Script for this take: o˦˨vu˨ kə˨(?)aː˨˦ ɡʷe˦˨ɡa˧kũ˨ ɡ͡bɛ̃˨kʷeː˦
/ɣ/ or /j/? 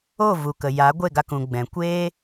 j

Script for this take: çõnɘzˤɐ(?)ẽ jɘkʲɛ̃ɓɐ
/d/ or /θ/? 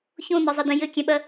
d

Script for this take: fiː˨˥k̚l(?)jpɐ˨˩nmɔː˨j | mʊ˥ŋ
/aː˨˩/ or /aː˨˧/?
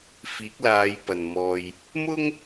aː˨˧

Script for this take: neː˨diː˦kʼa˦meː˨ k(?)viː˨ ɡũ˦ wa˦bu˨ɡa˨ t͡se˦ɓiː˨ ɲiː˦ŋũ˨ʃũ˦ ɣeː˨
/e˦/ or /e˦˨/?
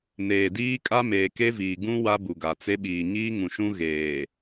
e˦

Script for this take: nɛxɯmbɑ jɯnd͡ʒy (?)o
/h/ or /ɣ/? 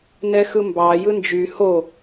h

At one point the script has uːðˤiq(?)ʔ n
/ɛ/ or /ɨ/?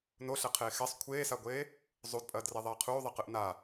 ɨ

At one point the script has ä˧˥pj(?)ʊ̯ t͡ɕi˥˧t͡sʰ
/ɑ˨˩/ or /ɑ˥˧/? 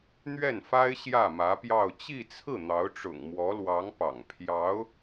ɑ˥˧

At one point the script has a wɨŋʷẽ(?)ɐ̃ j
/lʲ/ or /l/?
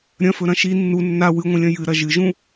lʲ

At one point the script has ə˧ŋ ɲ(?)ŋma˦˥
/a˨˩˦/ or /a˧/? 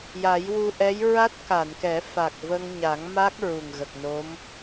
a˨˩˦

